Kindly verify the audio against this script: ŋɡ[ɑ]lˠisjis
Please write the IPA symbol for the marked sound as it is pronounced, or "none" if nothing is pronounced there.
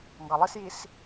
ɑ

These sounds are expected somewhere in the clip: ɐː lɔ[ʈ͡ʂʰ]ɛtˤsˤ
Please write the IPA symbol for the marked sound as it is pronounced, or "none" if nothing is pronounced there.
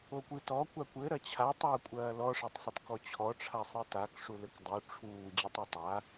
ʂ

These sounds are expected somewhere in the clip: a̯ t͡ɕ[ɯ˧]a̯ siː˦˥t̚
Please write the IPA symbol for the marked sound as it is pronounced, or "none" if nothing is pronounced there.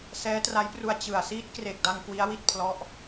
ɯ˨˩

